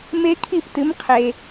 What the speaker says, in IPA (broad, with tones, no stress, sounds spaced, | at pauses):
m e˦˥ kʰ i˥˩ p t ɨ˨˥ m qʰ e˧